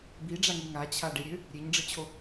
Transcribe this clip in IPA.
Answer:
biɖ͡ʐaŋi ŋat͡ɕʰaɖeɾʲø | ɾʲeɲɖ͡ʐət͡ɕʰo

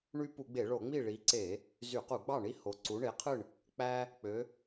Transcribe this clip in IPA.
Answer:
ɳy˦ pu˧˩˧ɡ͡be˧˩˧ɭo˧˩˧ŋ͡mi˥˨ ɭi˨˦ǀe˧˩˧ | zy˧˩˧qu˧˩˧ɡ͡bɑ˥˨ ɳi˦ ho˨˦ǀu˨˦ɳe˨˦qʰɯ˥˨ɳ | k͡pæ˦ | k͡pø˨˦

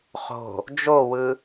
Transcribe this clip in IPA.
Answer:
χo̤ | d͡ʒowɯ

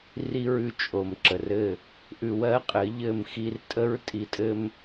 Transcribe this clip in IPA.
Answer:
ri˧ɹʉ˨ t͡ʃʼo˨mǁə˨rɘ˦˨ | ʔʉ˧wɜ˦qʼɘ˨˦ ʎɘ˦˨mxi˦r tʼə˦ɹ tʼi˧tʼɘ˦m

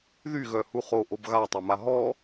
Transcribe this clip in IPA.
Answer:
ðyɣœ huχo ʔobɣatˤœma ɦɔ

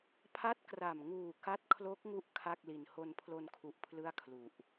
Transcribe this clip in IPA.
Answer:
pʰa˦˥t̚kra˨˩m ŋuː˨˩ ka˦˥t̚kʰlo˦˥k̚ŋu˦˥ʔ kʰa˥˩k̚li˨˩n ho˧npʰlo˧nkʰu˨˩ʔ pʰlɯ˥˩a̯kʰlu˨˩ʔ

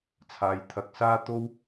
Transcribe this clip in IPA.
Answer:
t͡sʰaː˨j t̪ʰɐ˨k̚saː˥t̪o˥w

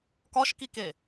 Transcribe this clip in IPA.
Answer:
kɒʃkike

